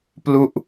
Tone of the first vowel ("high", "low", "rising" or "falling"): falling